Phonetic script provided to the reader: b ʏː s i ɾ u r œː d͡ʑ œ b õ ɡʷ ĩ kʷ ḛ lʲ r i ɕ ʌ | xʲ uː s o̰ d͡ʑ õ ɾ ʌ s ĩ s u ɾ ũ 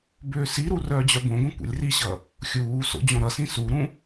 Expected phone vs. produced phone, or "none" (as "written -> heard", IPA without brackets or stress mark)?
none